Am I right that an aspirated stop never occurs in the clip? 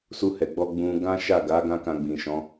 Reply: yes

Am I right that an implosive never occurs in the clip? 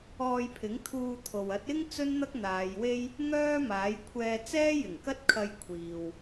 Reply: yes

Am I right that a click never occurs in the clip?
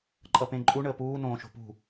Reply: no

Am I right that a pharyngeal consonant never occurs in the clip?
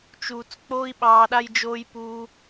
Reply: yes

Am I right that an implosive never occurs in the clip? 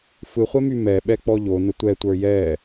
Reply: no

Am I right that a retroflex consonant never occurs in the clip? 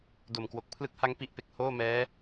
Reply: yes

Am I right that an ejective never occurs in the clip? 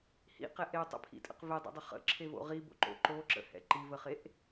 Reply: no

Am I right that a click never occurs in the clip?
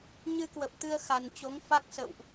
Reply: yes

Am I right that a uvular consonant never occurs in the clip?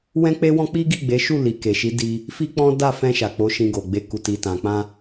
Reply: yes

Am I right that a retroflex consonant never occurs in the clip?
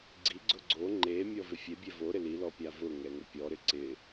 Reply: yes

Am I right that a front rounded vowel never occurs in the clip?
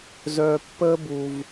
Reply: no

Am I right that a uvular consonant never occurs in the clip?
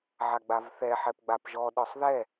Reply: yes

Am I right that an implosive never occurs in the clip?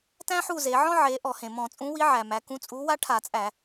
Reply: yes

